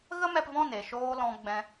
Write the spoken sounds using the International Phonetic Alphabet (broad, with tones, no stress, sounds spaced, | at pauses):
ɣ ə˦ m ɛ˧ p v ɔ̃˦˨ n e˨ ʃ oː˧ l ɔ̃˧ ɡ͡b ɛ̃˧